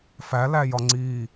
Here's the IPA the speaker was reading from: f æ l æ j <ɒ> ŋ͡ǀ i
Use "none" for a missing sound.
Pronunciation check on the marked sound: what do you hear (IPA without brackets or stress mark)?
ɒ